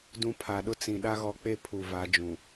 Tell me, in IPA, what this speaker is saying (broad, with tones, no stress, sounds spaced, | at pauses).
d ũ˦ pʰ a˨ ɗ ʊ˦ t͡s ĩ˨ ɗ a˦ ɣ ɔ˨˦ k͡p e˦ pʰ u˨ v a˨˦ d͡ʒ ũ˨